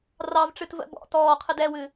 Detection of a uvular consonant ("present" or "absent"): present